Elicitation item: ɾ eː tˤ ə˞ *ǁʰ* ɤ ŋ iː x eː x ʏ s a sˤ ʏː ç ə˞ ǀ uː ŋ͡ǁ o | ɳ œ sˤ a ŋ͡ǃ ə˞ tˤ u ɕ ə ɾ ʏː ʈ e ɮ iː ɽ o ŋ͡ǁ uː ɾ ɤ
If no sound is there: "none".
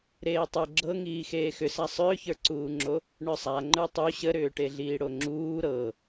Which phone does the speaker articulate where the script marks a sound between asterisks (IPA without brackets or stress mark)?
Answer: ɡ͡ǁ